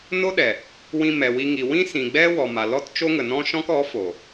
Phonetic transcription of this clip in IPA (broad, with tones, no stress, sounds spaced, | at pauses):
n o˦ ɗ ɛ˨ | w ĩ˧ m ɛ˨ w i˧ ŋ i˨ w ĩ˦ s ĩ˨ ɡ͡b ɛ˦ w ɔ˨ m a˨ l ɔ˦ t t͡ʃ o˦ ŋ ə˨ n ɔ̃˦ ʃ ɔ̃˦ k ɔ˨˦ f o˨